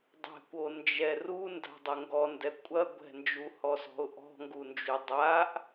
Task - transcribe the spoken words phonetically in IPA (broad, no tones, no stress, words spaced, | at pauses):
dˤɛ̤kʷond͡ʒɛ runda̤dˤɘ ŋɡɔndɛ kʷʼɐ ɡʷɛ̤nd͡ʒuhɔsɔ̤ʊ̯ ʔɔ̤ŋɡund͡ʒu dˤaʔ